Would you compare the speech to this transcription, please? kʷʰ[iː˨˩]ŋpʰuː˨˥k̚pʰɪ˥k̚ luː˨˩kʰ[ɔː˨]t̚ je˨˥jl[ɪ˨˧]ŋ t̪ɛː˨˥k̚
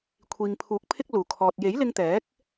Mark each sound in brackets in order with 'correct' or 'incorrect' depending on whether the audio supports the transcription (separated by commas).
incorrect, correct, incorrect